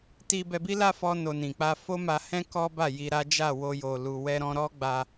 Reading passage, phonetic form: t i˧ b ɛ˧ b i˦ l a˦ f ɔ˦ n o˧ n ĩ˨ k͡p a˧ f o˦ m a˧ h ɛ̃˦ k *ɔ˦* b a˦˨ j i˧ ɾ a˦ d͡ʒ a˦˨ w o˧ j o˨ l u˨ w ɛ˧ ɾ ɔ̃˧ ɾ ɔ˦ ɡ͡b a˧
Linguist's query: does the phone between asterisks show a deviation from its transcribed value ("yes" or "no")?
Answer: no